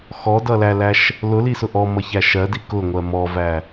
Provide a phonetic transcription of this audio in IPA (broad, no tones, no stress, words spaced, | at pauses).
xɔdʌlælæʃ | lʊlisʊ ʔɔmʌçæ ʃɜdi kʊŋʷɜ mɔvæ